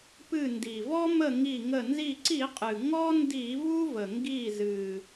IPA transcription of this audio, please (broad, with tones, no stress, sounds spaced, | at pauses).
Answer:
p ɨ˧˩ n d i˩ v ɔ˦ m ə˧˩ ŋ i˧˩ ŋ ə˧˩ n z i˧˩ ǀ i˧˩˧ qʼ ɨ˩ ŋ ɔ˦ n d i˧˩˧ v u˦ v ə˩ ŋ ɡ i˧˩ z ɨ˩